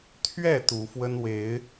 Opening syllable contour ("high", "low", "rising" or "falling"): falling